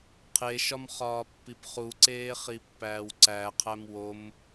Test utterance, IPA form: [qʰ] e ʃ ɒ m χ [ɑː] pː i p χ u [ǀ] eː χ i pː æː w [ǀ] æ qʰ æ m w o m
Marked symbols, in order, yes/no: yes, no, yes, yes

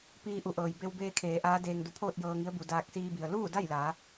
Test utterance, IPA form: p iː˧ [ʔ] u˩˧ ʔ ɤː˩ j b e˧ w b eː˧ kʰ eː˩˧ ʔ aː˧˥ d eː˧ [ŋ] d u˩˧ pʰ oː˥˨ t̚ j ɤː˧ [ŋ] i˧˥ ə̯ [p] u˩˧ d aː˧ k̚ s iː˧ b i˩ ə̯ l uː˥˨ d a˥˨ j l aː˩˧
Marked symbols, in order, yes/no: yes, yes, yes, no

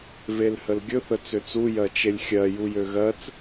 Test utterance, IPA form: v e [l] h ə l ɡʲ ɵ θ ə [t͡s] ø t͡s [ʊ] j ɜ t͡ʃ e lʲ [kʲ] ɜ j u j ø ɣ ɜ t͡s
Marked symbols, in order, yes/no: yes, yes, no, no

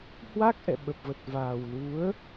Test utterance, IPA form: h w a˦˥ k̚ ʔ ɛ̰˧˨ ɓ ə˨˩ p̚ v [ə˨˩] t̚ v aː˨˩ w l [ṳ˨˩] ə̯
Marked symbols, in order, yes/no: yes, no

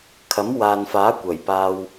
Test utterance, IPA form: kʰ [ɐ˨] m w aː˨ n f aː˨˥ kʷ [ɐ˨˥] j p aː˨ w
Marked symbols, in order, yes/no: no, no

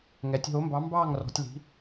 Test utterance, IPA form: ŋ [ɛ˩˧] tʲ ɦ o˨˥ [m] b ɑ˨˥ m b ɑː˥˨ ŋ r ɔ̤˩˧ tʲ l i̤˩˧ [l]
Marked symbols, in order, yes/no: yes, yes, no

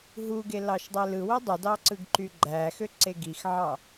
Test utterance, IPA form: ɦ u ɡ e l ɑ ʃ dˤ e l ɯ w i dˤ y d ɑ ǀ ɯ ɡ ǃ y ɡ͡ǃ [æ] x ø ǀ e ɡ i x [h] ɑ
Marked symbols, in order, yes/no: yes, no

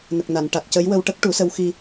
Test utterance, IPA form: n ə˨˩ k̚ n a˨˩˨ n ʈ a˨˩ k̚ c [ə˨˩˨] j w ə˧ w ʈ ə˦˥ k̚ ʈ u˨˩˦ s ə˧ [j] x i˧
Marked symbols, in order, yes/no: no, no

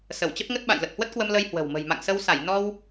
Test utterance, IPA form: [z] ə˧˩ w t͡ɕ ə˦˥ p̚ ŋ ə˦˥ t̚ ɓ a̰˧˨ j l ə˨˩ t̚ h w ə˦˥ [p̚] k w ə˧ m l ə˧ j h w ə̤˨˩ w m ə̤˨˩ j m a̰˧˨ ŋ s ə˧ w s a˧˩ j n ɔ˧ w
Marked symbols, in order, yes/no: no, no

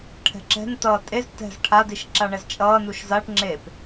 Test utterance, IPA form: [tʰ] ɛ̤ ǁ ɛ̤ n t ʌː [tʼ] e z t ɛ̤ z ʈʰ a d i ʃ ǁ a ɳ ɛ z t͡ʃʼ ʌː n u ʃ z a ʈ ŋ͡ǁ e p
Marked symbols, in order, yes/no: no, yes

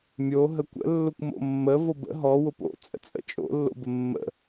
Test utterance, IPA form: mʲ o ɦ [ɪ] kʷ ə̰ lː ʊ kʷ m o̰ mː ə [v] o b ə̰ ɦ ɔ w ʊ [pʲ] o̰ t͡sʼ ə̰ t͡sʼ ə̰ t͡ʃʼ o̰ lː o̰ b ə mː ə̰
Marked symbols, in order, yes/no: no, yes, no

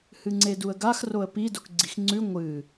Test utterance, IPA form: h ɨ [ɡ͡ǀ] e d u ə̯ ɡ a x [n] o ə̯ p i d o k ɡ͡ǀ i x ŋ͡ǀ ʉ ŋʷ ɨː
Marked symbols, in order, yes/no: no, no

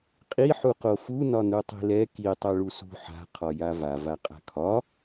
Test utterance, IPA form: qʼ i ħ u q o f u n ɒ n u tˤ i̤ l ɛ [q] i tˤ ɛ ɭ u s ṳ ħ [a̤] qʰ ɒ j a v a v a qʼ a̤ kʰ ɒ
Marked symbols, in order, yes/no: no, yes

